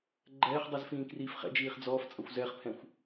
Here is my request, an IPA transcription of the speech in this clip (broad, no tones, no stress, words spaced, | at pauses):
ɡ͡ǃɛːχdˤiz fĩːkriːfχɛ̰d͡ʒiːχ d͡zɔːft͡sʼʌxʷ zɛχpʰɛ̃xʷ